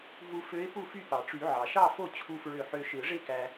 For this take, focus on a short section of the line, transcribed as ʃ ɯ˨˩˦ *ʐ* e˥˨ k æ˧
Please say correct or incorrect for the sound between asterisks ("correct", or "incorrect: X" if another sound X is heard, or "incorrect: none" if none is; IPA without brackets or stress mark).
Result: correct